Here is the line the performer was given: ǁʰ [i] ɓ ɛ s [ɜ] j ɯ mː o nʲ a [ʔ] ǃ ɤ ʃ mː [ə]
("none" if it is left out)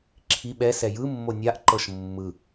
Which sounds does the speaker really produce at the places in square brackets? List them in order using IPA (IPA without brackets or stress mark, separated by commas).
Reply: i, ɛ, ʔ, ɯ